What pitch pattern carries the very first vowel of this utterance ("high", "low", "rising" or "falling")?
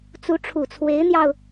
rising